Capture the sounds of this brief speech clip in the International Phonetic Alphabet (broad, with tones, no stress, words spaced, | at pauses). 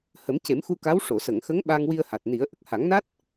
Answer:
hə˨˩˦mce˨˩˦mxu˧ka˧˥w ʂo˨˩˨sə˨˩˨ŋxə˧˥ŋ ɓa˧ŋwi˧ə̯ha˨˩t̚ ni˨˩˦ə̯ ʔə˨˩k̚ha˨˩˦ŋna˦˥t̚